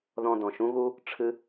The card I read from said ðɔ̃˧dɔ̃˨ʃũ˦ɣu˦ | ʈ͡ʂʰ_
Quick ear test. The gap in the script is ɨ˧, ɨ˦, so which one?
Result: ɨ˦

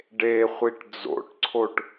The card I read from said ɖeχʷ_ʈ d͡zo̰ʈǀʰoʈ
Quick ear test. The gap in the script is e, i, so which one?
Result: i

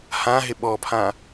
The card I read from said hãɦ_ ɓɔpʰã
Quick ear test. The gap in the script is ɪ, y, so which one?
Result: ɪ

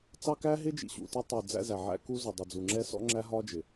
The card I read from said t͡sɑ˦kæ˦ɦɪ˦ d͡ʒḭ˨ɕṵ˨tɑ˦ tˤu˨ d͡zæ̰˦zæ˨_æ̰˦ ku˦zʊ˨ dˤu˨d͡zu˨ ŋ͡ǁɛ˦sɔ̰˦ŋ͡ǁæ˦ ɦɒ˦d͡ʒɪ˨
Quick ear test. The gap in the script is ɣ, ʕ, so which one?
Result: ʕ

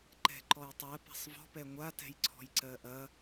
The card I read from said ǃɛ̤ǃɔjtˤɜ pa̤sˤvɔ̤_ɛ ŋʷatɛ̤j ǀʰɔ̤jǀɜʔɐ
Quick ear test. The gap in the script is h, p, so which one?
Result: p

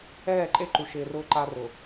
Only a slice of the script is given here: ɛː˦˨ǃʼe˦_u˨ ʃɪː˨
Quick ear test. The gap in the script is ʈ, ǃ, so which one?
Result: ǃ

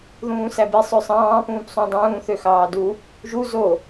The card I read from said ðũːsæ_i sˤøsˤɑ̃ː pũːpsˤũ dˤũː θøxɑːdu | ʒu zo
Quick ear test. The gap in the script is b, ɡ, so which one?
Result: b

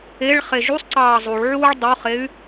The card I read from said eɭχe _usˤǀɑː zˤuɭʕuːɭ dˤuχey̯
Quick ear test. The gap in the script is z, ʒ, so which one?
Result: ʒ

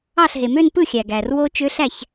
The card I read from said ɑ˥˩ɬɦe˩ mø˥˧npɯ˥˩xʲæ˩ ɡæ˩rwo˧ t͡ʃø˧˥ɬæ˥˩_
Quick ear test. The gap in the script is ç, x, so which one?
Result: ç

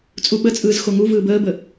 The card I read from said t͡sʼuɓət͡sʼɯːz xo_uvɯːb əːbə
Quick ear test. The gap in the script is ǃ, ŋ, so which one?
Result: ŋ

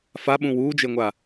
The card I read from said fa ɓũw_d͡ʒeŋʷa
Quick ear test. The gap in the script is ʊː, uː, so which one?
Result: uː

